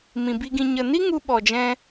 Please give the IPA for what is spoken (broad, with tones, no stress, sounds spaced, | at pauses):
m ĩ˨ b i˧ ɡ ĩ˧ ɲ ə˨ n i˦ ŋ u˧ ɓ ɔ˨ d͡ʒ ɛ̃˧